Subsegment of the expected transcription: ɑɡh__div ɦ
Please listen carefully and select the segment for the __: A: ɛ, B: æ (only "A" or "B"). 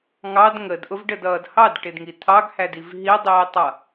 B